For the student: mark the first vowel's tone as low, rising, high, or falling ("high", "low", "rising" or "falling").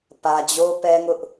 low